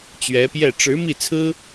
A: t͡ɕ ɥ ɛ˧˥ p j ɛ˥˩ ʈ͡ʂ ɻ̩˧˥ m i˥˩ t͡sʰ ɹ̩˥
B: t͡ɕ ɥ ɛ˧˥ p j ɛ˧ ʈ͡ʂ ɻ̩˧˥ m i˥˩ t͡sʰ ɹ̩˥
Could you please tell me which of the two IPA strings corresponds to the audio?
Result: A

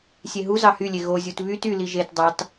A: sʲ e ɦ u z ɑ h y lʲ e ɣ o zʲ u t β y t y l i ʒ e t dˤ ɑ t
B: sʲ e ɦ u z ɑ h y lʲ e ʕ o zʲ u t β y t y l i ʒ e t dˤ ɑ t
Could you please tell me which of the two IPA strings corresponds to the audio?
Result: A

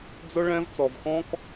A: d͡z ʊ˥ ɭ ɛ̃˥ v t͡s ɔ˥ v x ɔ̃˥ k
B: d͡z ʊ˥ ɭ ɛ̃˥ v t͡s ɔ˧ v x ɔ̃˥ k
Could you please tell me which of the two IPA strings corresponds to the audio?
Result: B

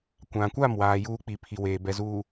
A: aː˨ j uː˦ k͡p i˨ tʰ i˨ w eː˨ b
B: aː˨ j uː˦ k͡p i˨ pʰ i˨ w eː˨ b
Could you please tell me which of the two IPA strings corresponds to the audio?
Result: B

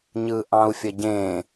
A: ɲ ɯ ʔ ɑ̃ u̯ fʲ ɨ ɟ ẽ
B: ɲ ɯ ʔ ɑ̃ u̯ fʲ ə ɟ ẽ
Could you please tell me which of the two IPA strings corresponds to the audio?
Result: B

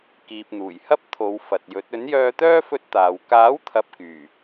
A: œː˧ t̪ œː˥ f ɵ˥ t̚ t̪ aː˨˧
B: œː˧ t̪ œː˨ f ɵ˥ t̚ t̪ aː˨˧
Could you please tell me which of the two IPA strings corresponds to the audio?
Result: A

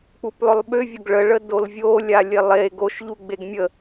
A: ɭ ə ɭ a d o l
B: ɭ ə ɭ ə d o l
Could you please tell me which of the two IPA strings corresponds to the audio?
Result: B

